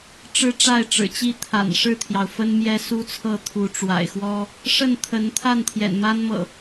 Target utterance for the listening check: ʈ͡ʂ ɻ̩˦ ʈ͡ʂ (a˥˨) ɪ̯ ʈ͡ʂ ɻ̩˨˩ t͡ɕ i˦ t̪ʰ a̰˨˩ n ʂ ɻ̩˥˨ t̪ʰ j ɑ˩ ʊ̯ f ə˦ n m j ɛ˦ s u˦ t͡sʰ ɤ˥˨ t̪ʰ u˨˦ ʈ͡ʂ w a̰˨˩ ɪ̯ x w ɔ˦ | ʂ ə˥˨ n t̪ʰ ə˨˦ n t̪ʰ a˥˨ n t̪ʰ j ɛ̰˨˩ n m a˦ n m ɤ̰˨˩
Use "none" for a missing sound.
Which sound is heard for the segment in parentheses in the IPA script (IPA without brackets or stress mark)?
a˥˨